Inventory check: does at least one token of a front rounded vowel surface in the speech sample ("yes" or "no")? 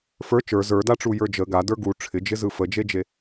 no